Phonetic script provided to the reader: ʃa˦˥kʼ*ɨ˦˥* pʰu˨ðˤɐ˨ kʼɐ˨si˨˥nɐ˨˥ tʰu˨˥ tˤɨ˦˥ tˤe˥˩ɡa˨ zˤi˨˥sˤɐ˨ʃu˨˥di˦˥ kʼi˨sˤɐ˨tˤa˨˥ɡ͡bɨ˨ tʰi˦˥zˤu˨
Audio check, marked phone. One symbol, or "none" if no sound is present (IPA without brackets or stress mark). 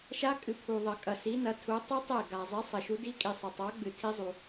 ɨ˨